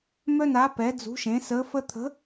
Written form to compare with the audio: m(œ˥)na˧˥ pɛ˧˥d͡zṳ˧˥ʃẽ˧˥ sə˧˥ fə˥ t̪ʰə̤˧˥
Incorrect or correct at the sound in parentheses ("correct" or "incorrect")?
correct